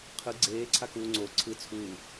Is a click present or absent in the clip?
present